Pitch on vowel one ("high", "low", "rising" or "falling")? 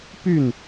falling